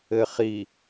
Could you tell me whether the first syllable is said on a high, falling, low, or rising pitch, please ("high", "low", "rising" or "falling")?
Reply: low